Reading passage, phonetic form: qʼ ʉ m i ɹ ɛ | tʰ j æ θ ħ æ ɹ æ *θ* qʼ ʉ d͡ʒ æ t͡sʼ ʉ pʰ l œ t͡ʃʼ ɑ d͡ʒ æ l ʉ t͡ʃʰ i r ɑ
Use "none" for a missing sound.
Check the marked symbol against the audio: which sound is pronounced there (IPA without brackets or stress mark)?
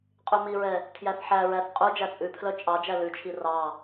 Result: θ